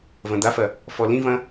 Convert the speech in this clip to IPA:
v ɐ̃ d̪ a f ɐ | f ɔ l ĩ v ɐ̃

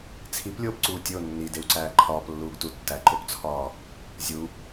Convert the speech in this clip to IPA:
t͡sʰ i p lʲ oː p ǀ uː tʲ o nː i d e w ǀ æː ǃʰ ɒː p lː uː ɡ t u tː æ ǃ o p t͡sʰ ɒː | zʲ u

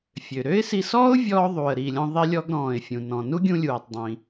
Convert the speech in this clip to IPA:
fʲ ø˩ ɾ ø˥ ɪ̯ s i˧ s ɔː˥ ʊ̯ vʲ ɔː˧ ðˤ uː˩ ə̯ ɾ iː˩ lʲ ɔ̃˧ ðˤ i˧ lʲ ɔ˧ ɡ ɾ ɔ̃ː˩ ɪ̯ fʲ ũ˩ n ɔ̃˩ n u˥ ɡʲ ũ˧ lʲ uː˩ tˤ dˤ ĩː˩

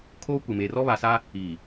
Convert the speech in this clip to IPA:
kʰ oː˦ kʷ ɪ˨ m e˨ r ɔ˦ β a˨ s a˦ | iː˨

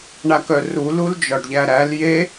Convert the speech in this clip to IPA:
ɳ a k œ r u l u l d͡ʒ ɒ ɖ ʎ æ ɾ æ l j e

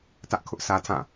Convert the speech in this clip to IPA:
t ä˦ ʔ kʰ ʊ˦ ʔ sʰ ä˦ tʰ ã˦˨

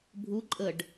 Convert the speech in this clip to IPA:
bʱ u ǃʼ ə ɖ

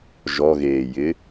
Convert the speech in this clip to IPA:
ʒ ɔ ɣ eː j ɪ

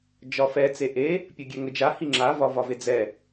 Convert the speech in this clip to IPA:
d͡ʒ ɒ f ɛ t͡s e ʔ e | pʲ ə ɡʲ ɛ ŋ ə d͡ʒ a h i ŋ͡ǁ a v ɒ v ɒ v e d͡z ɛ

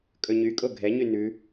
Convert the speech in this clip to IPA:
kʼ ɵ ɲ y kʼ o ɡʱ ɛ ɲ y n ʉ

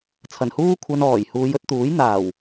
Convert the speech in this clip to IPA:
t͡sʰ ɐ˨˩ n h uː˥ kʷʰ ɐ˧ n ɔː˨˩ j h uː˨˧ j ɵ˧ t̚ t̪ uː˨˥ j n̪ aː˨˩ w

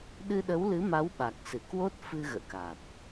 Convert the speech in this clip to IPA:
ɗ ɨ˧ ɗ ə˨˦ w l ɨ˨˦ m a˨˦ w ɓ a˨˩ k̚ s ɨ˧˩ k w o˦˥ t̚ f ɨ˧ ɣ ə̰ː˧˨ k a˨˩ t̚

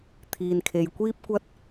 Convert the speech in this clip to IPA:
t̪ʰ iː˨ n kʰ e˨ j kʷ iː˥ p̚ kʷ ɐ˥ t̚

